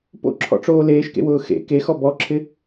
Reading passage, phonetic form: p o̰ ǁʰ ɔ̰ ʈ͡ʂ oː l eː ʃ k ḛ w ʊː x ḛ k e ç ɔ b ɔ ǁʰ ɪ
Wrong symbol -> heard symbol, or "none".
ç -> x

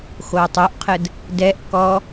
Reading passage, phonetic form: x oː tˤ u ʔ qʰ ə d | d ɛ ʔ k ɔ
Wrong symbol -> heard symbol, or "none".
none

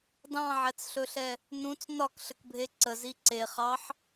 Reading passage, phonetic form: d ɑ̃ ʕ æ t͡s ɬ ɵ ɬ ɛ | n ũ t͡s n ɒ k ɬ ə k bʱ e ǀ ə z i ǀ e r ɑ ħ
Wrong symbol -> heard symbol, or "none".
r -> χ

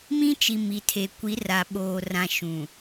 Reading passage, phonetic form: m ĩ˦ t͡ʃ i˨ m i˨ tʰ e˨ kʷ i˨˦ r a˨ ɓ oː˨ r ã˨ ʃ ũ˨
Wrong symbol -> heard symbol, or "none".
none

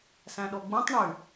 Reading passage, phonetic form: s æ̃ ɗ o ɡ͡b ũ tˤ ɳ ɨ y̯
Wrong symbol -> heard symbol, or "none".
none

